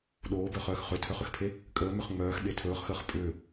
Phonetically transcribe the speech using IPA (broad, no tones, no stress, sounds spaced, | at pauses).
ɗ oː b œ χ œː x χ ʏ tʰ œ χ ʏ x pʰ e | kʼ əː m ʏ χ ŋ͡m œː x ɓ e tʰ ɵː χ x əː χ pʼ ʏː